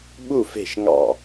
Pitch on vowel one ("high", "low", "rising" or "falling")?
falling